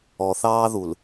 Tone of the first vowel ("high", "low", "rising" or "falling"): low